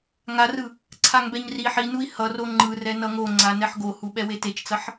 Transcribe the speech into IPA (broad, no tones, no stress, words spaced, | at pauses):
ŋarɯ | ǀʰaŋbɛɲri ħinui̯ hʌ roŋ͡ǃɯrɛ nʌŋo ŋ͡ǀanɛħɡohu ɓɛwetet͡ʃt͡sʌħ